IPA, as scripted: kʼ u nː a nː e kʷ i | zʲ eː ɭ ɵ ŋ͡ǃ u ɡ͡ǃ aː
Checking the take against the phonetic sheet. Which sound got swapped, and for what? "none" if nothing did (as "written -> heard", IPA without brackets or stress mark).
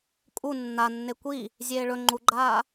none